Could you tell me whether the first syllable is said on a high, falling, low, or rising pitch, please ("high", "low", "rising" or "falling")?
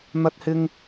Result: high